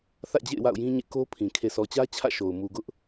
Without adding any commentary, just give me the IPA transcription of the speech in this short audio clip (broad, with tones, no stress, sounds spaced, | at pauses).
θ ä̰˦˨ d͡ʑ ḛ˦˨ ɪ̯ w a̰˦˨ ʊ̯ j ĩ˦ ɲ ḛ˦˨ k o˦ pʰ ĩ˨ kʰ e˨ sʰ ɔ˨ t͡ɕ ä˦ t͡ɕʰ ä̰˦˨ ʃ o˨ ʊ̯ m u˨ ɡ ʊ˦ ʔ